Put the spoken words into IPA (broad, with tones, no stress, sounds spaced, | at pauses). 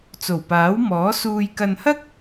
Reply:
t͡s o˨˩ w p aː˨˥ w m ɔː˨˥ s uː˧ j k ɐ˧ n h ɐ˥ k̚